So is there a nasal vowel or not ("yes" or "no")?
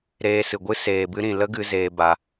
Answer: yes